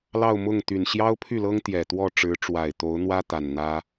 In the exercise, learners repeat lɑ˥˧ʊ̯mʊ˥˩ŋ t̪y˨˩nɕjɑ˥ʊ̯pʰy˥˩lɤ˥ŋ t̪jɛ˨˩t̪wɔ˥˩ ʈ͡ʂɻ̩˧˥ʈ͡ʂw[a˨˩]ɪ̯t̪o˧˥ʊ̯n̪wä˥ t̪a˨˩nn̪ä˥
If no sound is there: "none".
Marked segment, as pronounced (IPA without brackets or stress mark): a˨˩